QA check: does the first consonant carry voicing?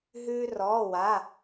yes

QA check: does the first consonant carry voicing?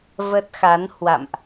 yes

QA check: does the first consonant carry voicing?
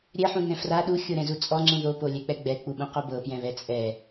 yes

